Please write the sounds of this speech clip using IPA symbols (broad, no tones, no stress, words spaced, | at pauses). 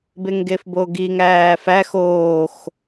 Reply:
beŋɡefboɡiŋ æːfæx oːx